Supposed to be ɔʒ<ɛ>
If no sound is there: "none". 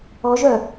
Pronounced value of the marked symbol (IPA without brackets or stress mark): œ